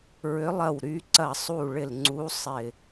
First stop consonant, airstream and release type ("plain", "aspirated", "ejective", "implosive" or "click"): click